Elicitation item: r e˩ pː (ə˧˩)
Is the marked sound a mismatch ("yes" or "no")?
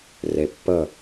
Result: no